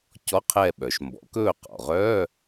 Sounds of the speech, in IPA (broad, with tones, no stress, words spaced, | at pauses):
cɔ˧˥˧qʰɛ˦˨ ɓœ˩ʃmbɔ̰˩˥k ɵː˦˨qɔ̰˩ʁœː˧˥˧